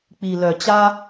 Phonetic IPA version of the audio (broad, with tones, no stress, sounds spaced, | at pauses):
k͡p i˨ l œ˨ t͡ɕ a˦